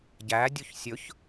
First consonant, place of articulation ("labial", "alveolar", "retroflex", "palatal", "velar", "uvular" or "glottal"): palatal